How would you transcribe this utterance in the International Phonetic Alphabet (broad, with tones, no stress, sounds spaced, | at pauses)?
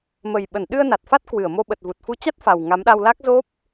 m ə˨˩ j ɓ ə˧˩ n ɗ ɨ˧ ə̯ n a˨˩ t̚ f a˦˥ t̚ k w ɨ˧˩ ə̯ m o˧ ɓ ə˨˩ t̚ v u˨˩ t̚ f u˨˦ t͡ɕ a˦˥ t̚ f a˨˩ w ŋ a˨˦ m ɗ a˧ w l a˦˥ k̚ z o˦˥ p̚